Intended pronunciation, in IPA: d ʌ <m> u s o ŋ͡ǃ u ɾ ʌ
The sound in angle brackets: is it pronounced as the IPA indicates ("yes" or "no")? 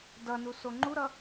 no